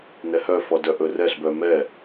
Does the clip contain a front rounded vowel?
yes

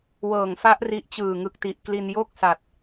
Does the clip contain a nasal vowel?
no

